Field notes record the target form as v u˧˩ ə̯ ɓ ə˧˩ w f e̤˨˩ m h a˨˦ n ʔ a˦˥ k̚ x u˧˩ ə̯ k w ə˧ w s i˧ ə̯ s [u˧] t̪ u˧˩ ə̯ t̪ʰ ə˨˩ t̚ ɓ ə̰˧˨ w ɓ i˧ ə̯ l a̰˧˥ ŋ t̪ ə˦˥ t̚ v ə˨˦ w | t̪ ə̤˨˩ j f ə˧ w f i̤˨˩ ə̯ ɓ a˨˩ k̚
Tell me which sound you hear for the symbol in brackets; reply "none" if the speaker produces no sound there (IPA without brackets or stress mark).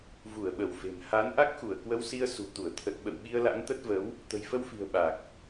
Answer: ṳ˨˩